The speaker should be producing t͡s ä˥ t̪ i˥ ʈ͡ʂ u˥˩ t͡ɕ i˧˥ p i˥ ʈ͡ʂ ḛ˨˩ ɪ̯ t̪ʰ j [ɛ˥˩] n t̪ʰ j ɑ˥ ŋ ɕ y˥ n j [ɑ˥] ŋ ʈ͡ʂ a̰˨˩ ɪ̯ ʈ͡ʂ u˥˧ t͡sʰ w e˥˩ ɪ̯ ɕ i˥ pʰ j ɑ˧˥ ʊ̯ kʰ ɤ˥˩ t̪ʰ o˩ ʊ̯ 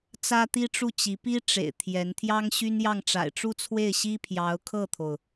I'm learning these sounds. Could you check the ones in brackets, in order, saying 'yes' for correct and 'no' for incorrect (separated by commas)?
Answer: no, no